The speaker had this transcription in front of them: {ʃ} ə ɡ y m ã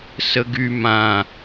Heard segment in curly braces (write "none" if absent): s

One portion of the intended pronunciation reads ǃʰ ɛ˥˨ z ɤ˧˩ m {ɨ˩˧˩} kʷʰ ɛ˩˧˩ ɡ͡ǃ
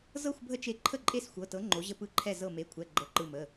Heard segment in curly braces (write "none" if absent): e˩˧˩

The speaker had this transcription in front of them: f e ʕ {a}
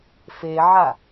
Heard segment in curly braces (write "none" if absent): a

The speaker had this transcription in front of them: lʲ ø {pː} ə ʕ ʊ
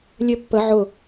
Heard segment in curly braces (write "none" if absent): pː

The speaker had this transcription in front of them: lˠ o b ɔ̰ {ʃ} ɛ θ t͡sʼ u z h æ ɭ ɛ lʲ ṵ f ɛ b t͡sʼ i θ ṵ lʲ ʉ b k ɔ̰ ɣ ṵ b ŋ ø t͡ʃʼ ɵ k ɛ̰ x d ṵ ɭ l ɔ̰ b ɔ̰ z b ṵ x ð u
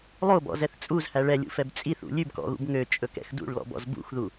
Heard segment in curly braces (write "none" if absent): z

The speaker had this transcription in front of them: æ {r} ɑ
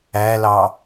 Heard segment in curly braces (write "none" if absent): l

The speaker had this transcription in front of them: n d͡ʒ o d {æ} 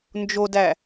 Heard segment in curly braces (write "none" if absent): æ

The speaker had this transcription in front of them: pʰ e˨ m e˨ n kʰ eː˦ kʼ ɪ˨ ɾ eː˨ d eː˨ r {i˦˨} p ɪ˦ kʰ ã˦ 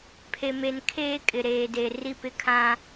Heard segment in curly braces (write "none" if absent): i˦˨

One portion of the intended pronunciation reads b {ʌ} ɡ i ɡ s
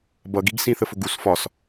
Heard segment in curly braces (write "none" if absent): ʌ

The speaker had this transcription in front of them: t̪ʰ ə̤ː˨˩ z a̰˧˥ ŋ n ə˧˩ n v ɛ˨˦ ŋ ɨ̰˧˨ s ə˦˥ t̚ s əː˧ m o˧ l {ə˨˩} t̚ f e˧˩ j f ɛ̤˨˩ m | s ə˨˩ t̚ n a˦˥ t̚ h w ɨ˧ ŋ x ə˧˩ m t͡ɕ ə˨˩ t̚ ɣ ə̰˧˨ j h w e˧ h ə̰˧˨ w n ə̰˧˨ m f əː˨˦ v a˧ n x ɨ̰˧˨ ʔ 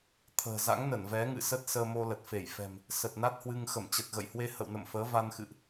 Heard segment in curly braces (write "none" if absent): ə˨˩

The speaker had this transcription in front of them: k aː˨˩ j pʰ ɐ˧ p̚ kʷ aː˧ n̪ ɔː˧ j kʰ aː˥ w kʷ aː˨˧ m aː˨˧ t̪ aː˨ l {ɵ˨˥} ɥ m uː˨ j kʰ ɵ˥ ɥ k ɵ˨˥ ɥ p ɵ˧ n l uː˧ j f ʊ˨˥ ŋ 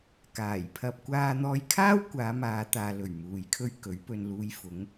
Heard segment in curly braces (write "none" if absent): ɵ˨˩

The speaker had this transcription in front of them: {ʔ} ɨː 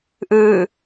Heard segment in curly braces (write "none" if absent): ʔ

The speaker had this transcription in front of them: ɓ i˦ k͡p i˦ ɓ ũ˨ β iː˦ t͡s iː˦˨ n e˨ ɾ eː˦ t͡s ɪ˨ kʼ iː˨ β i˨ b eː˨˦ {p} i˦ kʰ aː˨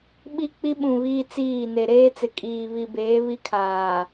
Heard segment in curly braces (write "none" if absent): β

